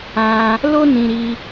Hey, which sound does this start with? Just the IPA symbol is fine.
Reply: ã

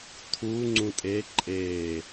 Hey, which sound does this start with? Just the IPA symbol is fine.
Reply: tʰ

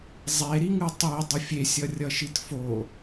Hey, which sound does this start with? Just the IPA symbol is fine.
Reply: zˤ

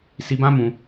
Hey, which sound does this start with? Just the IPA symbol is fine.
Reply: s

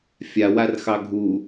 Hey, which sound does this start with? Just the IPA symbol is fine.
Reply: fʲ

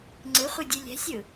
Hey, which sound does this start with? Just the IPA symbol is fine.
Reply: ŋ͡ǀ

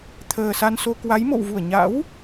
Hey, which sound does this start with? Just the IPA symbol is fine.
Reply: t̪ʰ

